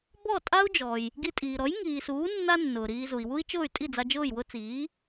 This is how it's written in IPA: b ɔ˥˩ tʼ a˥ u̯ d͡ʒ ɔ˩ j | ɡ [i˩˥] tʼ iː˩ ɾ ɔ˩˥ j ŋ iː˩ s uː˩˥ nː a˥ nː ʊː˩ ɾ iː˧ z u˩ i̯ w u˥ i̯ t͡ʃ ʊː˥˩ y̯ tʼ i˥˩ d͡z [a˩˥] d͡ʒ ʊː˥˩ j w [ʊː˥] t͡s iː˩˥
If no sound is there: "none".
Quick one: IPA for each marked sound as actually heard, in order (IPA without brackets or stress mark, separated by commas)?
i˧, a˧, ʊ˥